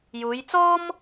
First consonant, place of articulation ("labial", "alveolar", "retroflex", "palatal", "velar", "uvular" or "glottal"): palatal